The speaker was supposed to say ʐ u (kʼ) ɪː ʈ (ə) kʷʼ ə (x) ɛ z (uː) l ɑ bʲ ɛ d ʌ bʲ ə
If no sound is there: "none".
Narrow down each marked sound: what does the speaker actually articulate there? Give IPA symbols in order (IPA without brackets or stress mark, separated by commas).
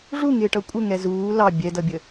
ŋ, ʌ, ŋ, uː